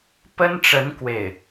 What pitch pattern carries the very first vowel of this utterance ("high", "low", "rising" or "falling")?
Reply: high